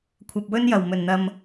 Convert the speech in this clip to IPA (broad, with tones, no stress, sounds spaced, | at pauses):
kʷʰ ɐ˨ p̚ w ɵ˥ n j ɐ˨˩ w m ɵ˨˩ n n̪ ɐ˨ m